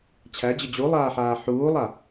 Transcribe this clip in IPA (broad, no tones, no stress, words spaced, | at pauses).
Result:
t͡ɕʰæd͡ʑə d͡ʑulˠaːħaː ħuːlˠa